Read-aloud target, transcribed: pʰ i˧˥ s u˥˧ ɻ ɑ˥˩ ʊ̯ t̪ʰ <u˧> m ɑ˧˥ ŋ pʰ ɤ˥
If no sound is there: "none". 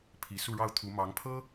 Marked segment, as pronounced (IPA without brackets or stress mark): u˧˥